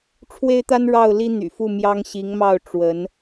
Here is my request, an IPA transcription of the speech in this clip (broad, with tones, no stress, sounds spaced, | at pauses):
ʈ͡ʂʰ w e˥ ɪ̯ t̪ a˥ n ɻ ɑ˥˩ ʊ̯ l i˥ n̪ y̰˨˩ f u˥˩ m j ɑ˥ ŋ ɕ i˧˥ ŋ m ɑ˥˩ ʊ̯ ʈ͡ʂ w ə˧˥ n